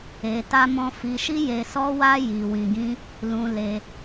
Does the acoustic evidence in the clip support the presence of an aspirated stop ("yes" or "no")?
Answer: no